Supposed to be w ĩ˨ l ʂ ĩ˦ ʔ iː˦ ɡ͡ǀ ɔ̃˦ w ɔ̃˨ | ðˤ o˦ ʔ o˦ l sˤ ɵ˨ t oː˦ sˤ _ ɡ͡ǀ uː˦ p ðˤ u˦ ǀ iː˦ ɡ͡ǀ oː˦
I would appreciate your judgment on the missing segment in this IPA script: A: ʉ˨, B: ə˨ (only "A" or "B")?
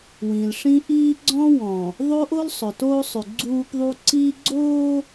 A